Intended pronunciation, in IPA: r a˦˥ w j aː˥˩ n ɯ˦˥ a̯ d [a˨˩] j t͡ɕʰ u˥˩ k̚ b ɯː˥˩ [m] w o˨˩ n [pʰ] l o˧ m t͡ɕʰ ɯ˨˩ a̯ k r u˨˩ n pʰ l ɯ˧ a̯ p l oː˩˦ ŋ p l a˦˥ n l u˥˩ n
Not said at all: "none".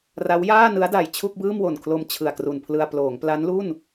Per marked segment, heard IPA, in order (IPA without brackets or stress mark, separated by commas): a˨˩, m, kʰ